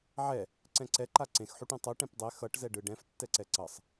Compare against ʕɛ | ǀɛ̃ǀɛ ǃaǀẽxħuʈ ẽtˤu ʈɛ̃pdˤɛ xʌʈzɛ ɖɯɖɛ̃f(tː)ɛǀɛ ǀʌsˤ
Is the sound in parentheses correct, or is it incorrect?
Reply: correct